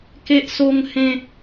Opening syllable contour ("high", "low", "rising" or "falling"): high